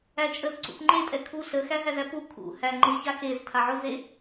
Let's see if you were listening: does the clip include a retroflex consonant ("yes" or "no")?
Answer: no